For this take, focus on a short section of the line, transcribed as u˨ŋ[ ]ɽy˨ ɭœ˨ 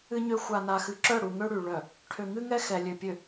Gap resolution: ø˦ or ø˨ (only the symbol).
ø˦